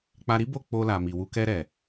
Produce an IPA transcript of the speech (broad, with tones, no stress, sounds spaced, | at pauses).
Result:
k͡p a˧ ɾ i˦ b o˦˨ k͡p o˧ l a˨ m i˨ w u˧ k ɛ˧ ɾ ɛ˨